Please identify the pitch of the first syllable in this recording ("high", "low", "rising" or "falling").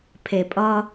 low